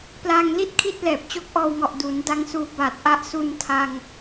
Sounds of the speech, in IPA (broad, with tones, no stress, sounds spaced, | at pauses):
p l aː˧ ŋ l i˥˩ t̚ kʰ i˥˩ t̚ l ɛː˨˩ p̚ t͡ɕ o˦˥ k̚ ʔ ɔː˧ w ŋ ɔ˨˩ ʔ d u˩˦ n d a˧ ŋ s uː˧ b aː˨˩ t̚ ʔ a˦˥ ʔ s u˧ n tʰ a˧ ŋ